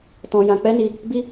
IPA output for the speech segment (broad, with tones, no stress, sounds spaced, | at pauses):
t ɔ̃˧ j ã˧ k͡p ɛ˦ n i˧ | b i˦